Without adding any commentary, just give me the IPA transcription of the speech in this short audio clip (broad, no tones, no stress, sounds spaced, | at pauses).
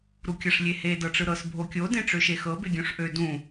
ɾ u kʲ ɤ ʂ lʲ e h e d ɤ ʈ͡ʂ ɯ ɾ ɤ s bʱ o kʲ o d ẽ ʈ͡ʂ ø ʃ e x ɤ b e ɡʲ õ ʂ ʔ ø d ũ